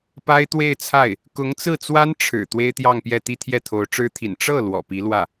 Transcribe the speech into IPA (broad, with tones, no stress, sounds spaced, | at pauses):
p a˥ ɪ̯ t̪ w e˥˧ ɪ̯ t͡sʰ a˥˩ ɪ̯ | k ʊ˧˥ ŋ t͡s ɹ̩˥˩ t͡s w a˥ n ʈ͡ʂʰ ɻ̩˨˩ t̪ w e˥ ɪ̯ t̪ j ɑ˥˧ ŋ p j ɛ˥˧ t̪ i˥˧ t̪ʰ j ɛ˥˩ t̪ʰ o˧˥ ʊ̯ ʈ͡ʂ ɻ̩˥ t̪ʰ ḭ˨˩ n ʈ͡ʂ ɤ˥˩ l w ɔ̰˨˩ p i˧˥ l w ä˥˩